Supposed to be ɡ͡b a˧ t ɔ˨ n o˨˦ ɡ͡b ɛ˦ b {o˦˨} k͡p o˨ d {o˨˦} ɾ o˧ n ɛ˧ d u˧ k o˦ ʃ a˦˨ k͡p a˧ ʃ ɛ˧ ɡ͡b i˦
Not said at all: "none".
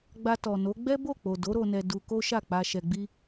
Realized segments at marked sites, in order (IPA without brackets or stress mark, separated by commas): o˦˨, o˨˦